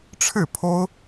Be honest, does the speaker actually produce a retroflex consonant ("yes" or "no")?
yes